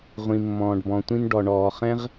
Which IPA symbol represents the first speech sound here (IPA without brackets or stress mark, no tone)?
ʁʷ